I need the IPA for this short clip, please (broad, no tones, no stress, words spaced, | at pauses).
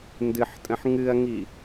ndɨħtʼə̃ħ ŋɨɐ̯ŋi